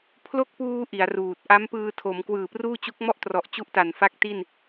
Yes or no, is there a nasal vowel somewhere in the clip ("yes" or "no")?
no